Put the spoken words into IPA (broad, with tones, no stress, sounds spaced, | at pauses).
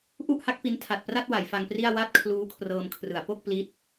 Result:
ʔ u˥˩ ʔ h a˦˥ k̚ p i˦˥ n tʰ a˨˩ t̚ p r a˥˩ t̚ w a˩˦ j f a˧ ŋ p r i˥˩ a̯ w a˥˩ t̚ kʰ l uː˦˥ kʰ r ɤː˧ m kʰ r ɯ˩˦ a̯ p o˥˩ k̚ p l i˦˥ t̚